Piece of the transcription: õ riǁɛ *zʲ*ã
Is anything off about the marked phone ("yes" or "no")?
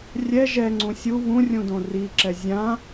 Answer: no